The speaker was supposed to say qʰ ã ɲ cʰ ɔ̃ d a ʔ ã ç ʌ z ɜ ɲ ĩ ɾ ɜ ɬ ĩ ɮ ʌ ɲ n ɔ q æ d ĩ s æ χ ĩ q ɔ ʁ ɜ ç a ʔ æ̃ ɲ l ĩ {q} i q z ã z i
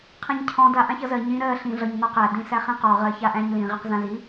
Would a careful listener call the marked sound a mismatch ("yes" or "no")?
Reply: yes